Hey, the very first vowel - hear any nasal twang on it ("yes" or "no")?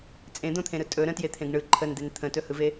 yes